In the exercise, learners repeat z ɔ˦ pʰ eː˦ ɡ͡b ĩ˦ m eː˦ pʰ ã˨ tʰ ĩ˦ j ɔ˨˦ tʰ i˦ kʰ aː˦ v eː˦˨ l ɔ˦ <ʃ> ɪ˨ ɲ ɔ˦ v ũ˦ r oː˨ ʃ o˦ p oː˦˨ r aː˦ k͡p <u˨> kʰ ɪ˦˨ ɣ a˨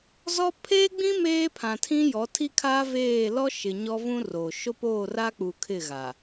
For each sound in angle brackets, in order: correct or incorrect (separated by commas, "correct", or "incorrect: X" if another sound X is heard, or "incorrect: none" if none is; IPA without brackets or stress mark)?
correct, correct